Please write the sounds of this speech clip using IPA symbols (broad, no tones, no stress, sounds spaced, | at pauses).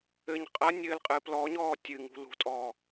ɘ ɲ qʼ ɐ nʲ ɘː l qʼ ɨː p l ɔ ɲ ɔː tʲ ɨ ŋ ṳ l ṳ tʼ ɔː